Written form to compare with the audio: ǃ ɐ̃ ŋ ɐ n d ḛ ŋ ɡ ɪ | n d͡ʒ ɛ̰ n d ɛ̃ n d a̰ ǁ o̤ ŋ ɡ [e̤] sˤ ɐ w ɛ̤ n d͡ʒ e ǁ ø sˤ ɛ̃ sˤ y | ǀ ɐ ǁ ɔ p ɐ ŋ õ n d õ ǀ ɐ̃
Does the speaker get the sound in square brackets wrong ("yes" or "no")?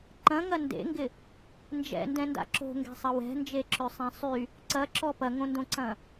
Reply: yes